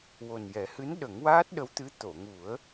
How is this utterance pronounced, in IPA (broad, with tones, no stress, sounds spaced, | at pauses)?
w o˨˩ n j ɛ˨˩˦ h ɨ˧˥ n ɗ ə˨˩˦ ŋ w aː˦˥ t̚ ɗ ə˧˥ w t̪ ɨ˧˥ t̪ o˨˩˨ ŋ u˨˩˦ ə̯